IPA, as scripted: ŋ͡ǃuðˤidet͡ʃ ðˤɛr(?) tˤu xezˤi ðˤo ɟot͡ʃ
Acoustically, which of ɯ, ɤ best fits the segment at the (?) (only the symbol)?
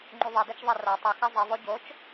ɤ